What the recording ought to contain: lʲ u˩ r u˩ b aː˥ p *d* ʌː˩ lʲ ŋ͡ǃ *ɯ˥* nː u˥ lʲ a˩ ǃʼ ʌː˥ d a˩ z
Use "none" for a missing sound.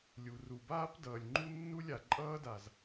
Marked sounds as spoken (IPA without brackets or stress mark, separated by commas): d, u˥